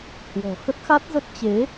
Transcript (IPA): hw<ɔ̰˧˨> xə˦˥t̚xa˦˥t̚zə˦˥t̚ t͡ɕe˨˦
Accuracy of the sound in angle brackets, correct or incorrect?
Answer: incorrect: ɔ̤˨˩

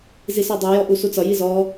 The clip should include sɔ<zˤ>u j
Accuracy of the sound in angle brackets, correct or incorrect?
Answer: incorrect: dˤ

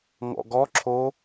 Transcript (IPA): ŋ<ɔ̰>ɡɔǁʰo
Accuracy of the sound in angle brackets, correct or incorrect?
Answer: correct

